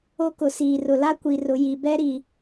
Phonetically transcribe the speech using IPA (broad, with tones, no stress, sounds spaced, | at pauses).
o˦ k ʊ˨˦ s iː˨ r ʊ˨ l a˦ kʷ i˨ r ʊ˨ j i˨ b ɛ˦ ɾ i˨